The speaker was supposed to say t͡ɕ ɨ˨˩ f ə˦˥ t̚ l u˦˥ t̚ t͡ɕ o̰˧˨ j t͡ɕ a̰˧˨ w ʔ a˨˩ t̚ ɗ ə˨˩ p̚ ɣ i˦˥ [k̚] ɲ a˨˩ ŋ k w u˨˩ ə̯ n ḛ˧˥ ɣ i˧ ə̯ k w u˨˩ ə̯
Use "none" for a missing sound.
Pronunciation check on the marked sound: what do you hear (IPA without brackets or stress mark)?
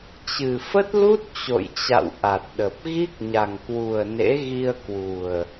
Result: k̚